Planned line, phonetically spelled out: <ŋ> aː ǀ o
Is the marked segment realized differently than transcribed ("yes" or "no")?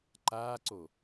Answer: yes